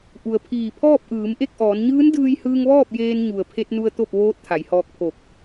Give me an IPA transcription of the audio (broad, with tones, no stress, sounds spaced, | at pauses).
ʔ u˩ ə̯ pʰ iː˧˩ pʰ ɔː˥˨ p̚ ʔ ɯː˩˧ m ʔ e˥˨ k̚ ʔ ɔː˩˧ n ɲ ɯː˧˥ n d ɯː˧ j h ɯː˧ ŋ ʋ ɔː˥˨ p̚ j eː˧ n ɲ u˩ ə̯ pʰ e˧ t̚ n u˧ ə̯ t̪ o˥˨ p̚ ʋ oː˧˥ t̚ t̪ʰ a˩˧ j h ɔː˧ k̚ pʰ o˧˩ k̚